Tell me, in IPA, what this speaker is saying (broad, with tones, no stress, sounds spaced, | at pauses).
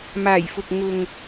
m aː˨˩ j f ʊ˨ k̚ ŋ ʊ˨ ŋ